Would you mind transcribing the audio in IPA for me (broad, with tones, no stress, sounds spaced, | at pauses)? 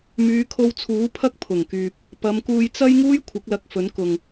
m yː˨˧ kʰ o˧ w t͡sʰ uː˨˥ pʰ ɐ˥ k̚ pʰ ʊ˨˩ ŋ k yː˨ p̚ | p ɐ˨˧ m k uː˧ j t͡s ɐ˥ j ŋ uː˥ j kʷʰ ɪ˨˥ k̚ l ɐ˧ k̚ f ɵ˨˥ n k ʊ˨ ŋ